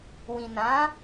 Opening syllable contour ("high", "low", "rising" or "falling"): low